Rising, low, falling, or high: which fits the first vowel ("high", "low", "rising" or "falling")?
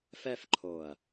falling